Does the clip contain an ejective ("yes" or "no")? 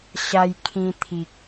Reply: no